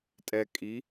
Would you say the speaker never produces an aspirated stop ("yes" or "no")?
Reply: yes